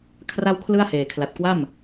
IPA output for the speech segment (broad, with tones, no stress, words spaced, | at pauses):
kʰra˥˩wkʰlɯ˥˩a̯ heː˨˩kʰla˨˩t̚kwa˥˩m